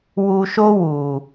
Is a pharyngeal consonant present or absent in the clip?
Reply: absent